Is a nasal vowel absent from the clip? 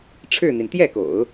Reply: yes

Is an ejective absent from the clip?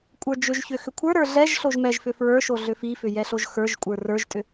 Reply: no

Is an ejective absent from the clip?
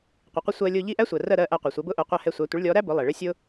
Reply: yes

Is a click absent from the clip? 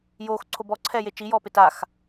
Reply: no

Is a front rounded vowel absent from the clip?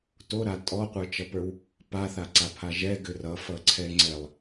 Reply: no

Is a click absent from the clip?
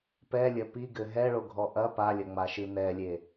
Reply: yes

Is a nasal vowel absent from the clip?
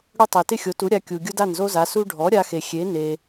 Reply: yes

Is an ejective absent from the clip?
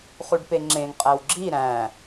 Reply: no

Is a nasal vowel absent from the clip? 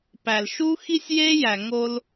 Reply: yes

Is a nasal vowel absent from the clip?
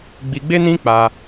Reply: no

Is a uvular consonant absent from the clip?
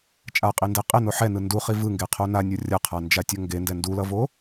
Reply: no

